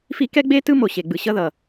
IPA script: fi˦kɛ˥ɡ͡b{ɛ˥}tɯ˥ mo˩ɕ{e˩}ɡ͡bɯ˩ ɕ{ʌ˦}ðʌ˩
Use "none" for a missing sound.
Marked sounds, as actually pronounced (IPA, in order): e˥, e˩, ʌ˦

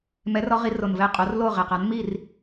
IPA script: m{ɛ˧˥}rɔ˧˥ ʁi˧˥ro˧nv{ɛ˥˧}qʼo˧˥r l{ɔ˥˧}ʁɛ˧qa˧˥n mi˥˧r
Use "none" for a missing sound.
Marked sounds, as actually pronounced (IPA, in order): ɛ˧˥, ɛ˥˧, o˥˧

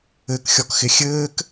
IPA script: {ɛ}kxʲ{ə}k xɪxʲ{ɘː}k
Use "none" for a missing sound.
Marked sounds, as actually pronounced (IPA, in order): ɘ, ɔ, ɘː

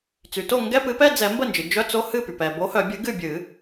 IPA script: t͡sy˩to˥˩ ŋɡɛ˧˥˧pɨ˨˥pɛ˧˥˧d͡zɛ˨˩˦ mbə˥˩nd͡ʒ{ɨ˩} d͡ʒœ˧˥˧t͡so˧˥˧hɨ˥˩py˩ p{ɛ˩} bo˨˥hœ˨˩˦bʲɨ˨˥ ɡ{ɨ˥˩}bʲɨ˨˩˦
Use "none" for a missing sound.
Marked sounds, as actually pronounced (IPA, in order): ɨ˩, ɛ˩, ɨ˥˩

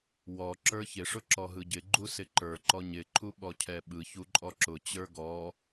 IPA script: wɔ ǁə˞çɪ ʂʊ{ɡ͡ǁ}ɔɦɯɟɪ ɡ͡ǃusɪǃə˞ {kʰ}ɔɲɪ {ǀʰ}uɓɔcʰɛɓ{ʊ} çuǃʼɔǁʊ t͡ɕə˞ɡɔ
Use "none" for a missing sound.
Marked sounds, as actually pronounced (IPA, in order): ǁ, ǃ, ǃʰ, ɯ

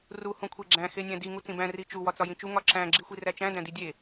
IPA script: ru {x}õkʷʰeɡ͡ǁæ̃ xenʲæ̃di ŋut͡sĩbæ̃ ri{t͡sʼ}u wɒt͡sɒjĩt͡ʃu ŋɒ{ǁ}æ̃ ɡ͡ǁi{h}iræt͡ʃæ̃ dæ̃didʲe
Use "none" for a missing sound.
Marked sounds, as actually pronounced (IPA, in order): h, t͡ʃ, ǁ, xʷ

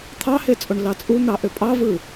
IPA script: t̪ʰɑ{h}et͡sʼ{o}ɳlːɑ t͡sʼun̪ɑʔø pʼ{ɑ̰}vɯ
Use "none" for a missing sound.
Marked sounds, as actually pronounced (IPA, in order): h, o, ɑ

